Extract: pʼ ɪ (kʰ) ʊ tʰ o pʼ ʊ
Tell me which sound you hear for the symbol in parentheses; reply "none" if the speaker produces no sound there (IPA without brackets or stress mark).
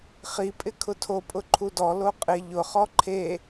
kʰ